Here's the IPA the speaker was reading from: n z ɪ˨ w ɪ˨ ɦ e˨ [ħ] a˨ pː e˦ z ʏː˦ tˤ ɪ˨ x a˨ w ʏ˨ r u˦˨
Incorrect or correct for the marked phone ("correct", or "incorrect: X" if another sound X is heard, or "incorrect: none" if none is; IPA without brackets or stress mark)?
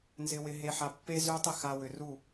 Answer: correct